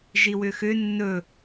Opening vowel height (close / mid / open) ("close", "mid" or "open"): close